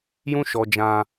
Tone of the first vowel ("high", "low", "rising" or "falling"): high